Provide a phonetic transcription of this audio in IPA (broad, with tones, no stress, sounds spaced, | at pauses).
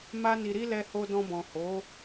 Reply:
m a˦ n i˧ ɾ i˦ l ɛ˧ h o˧ d ɔ̃˧ b ɔ̃˨ h o˨˦